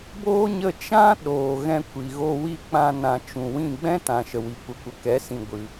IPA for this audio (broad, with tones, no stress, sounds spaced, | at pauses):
b oː˦ ɲ ə˦˨ t͡ʃ ã˦ ɗ oː˨ ɣ ɛ̃˧ kʷ i˨ ɣ o˧ w i˧ k͡p ã˧ n ã˨ t͡ʃ ũ˨ w ĩ˦˨ ɡ͡b ɛ̃˦ t ã˨ ʃ ə˨ w i˨ kʷ ə˨ kʷ ə˨ k ɛ˨˦ s ĩ˨ ɡʷ ɨ˨